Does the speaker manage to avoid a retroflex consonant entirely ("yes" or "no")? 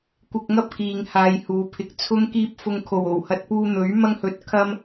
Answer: yes